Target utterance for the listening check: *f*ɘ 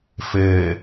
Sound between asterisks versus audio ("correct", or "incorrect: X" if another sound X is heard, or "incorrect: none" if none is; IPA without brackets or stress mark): correct